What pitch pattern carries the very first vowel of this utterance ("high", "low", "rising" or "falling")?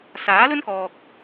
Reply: rising